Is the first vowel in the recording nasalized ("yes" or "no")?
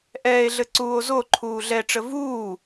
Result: no